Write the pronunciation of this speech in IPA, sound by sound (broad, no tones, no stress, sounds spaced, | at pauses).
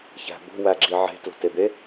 ç æ̤ b o̤ w æ ɡ͡ǁ i ʕ e̤ t l o̤ t e b e